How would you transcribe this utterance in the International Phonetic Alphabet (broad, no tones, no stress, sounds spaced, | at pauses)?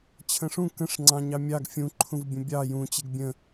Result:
t͡ɕʰ ə̃ ʂ ũ k ə̃ ʂ ŋ͡ǀ ɑ̃ ɲ ɑ mʲ ɑ ɡ fʲ ũ ǃʰ ũ v bʲ ə̃ bʲ ɑ j ũ t͡ɕ e ɡ bʲ ə̃